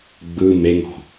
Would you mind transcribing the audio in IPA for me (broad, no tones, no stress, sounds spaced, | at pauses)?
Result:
ɡ͡b ɯ m e ŋ ɔ̤